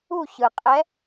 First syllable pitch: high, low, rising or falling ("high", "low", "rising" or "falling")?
falling